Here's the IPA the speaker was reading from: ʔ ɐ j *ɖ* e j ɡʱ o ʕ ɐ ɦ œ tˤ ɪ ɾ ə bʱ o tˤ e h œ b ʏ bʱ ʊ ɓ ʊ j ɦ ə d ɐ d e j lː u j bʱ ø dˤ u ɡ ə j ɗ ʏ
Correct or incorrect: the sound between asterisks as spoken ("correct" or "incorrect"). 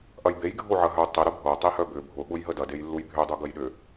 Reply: incorrect